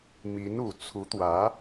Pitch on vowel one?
rising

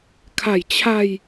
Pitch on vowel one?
low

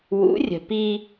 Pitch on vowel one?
rising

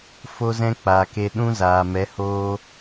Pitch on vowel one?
high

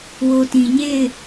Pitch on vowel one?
low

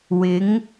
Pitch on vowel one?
rising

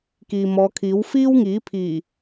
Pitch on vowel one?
low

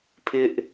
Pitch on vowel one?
high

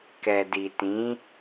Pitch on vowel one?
low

